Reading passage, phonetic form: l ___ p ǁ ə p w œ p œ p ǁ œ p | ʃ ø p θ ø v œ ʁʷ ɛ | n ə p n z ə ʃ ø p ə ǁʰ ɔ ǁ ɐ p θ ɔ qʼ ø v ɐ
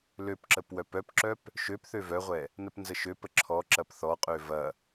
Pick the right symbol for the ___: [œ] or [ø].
ø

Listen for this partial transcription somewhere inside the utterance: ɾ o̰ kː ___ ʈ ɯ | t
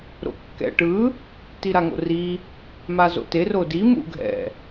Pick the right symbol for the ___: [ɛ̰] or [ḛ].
ɛ̰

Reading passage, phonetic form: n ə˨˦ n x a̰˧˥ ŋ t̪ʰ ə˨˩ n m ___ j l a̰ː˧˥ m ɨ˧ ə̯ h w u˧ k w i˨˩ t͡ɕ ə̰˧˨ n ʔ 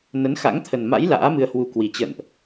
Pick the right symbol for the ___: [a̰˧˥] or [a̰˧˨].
a̰˧˥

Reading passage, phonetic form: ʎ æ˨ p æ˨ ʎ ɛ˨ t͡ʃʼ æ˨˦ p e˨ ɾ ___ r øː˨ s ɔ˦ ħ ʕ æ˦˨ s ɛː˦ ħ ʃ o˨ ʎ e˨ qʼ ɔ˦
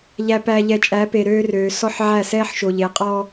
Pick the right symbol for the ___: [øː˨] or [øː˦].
øː˦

